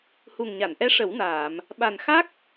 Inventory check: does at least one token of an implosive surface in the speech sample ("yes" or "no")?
yes